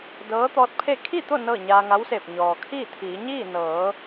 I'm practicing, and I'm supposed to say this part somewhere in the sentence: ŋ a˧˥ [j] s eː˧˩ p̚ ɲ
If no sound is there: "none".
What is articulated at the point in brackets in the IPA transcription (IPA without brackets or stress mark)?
w